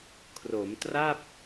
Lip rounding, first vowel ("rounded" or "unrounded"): rounded